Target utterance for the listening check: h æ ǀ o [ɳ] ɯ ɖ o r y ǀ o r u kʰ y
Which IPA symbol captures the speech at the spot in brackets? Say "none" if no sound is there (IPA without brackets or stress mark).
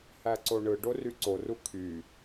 ɳ